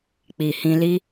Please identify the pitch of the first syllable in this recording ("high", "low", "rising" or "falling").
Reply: low